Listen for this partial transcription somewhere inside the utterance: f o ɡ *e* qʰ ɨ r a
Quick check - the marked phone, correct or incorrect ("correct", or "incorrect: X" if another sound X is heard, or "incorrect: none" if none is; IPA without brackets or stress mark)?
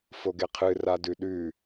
correct